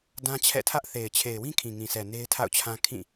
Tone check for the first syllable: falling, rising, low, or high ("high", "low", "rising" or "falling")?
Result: high